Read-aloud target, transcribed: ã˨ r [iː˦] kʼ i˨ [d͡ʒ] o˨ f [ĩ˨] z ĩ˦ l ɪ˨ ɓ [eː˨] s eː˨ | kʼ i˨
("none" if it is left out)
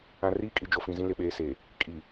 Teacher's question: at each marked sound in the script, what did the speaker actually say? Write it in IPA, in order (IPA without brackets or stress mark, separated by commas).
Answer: iː˦, d͡ʒ, ĩ˨, eː˦